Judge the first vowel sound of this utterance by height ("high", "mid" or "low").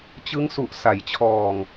high